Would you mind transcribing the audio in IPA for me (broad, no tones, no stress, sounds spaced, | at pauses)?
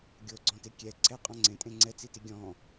ɡʲ o ɡ͡ǀ ɔ̃ t e kʲ ɛ ǀʰ ɛ qʼ ɔ̃ ŋ͡ǀ ẽ tʼ ẽ ŋ͡ǀ ɛ t͡s i t i ɡʲ ɔ̃